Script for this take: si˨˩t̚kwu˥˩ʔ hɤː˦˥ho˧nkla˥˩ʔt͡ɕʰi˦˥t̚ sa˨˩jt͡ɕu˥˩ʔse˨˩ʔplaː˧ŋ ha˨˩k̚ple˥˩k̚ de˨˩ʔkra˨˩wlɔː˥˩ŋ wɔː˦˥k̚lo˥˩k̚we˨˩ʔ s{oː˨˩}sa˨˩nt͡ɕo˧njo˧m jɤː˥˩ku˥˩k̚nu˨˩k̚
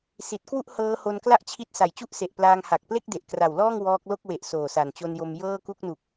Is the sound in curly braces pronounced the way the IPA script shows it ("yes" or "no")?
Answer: yes